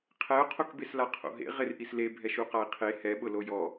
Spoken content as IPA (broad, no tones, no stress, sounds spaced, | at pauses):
qʰ ɛ o̯ qʰ o k b e s l a qʰ o̰ ɦ ḛ ʁ ɪ r ʔ i s l e bʱ ɛ ʃ u q a e̯ qʰ e h ɛ ɓ ʊ l o j ɔ